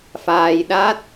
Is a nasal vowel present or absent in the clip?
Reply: absent